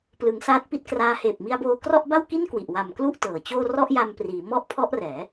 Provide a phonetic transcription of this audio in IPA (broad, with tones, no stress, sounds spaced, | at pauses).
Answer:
p l ɯ˩˦ ŋ s aː˦˥ t̚ p i˥˩ t̚ k r aː˦˥ h eː˨˩ p̚ m i˧ a̯ b oː˧ k r ɔ˥˩ ʔ b a˥˩ w k i˥˩ n k w i˨˩ ʔ w a˨˩ m k l u˥˩ ʔ t ɤː˩˦ t͡ɕ oː˥˩ r ɔ˥˩ ʔ j a˧ m p r iː˩˦ m ɔ˦˥ ʔ pʰ ɔ˦˥ ʔ r ɛː˩˦